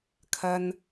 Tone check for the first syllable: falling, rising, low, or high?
low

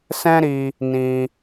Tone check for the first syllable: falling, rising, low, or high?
high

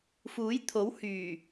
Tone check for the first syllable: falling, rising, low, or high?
rising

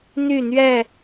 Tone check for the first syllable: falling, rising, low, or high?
falling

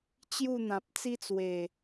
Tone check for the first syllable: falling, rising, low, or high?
falling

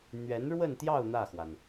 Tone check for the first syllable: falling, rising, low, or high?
rising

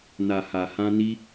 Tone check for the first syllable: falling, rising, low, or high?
low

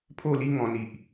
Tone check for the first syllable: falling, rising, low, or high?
falling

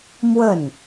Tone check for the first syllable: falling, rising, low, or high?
falling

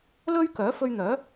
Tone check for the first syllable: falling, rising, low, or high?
high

